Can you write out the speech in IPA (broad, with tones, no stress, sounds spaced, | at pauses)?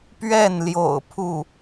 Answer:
p ɥ ɛ˥˩ n l j o̰˨˩ ʊ̯ pʰ u˥˩